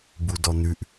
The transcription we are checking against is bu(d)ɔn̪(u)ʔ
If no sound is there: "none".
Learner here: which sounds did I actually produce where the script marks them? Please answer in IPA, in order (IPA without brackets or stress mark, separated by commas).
d, ʉ